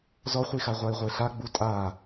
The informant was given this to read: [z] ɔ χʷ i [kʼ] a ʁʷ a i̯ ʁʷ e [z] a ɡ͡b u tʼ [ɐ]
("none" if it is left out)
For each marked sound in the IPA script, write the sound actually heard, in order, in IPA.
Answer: z, x, ɬ, a

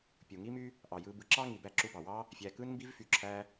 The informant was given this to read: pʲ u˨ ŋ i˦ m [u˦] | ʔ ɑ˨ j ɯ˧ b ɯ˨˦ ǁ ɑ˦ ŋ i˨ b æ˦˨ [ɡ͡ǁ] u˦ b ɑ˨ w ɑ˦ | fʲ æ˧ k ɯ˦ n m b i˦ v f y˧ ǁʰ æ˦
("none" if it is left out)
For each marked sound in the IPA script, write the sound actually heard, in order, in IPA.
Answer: y˦, ǁ

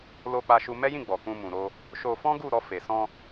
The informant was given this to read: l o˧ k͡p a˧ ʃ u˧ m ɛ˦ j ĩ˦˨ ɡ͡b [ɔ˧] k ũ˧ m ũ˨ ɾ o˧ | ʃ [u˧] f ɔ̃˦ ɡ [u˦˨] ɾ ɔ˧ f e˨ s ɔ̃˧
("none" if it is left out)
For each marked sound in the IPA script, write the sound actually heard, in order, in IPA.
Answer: ɔ˨, o˧, u˦˨

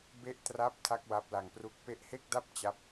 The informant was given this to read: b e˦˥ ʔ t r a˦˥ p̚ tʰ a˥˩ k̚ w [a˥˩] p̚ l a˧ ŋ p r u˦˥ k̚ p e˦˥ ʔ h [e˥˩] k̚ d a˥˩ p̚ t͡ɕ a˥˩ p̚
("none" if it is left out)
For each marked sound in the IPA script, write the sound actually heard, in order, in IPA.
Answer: a˦˥, e˥˩

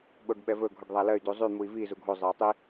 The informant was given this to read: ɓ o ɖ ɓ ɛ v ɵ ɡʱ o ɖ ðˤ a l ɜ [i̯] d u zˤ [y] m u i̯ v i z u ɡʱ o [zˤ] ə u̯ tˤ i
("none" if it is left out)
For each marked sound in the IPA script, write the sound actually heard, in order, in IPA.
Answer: y̯, y, zˤ

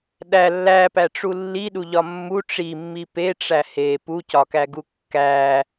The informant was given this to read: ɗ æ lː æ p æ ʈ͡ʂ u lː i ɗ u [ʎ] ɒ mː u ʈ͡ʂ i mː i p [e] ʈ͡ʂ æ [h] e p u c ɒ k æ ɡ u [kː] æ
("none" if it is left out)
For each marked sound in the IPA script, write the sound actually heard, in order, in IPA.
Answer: ʎ, e, h, kː

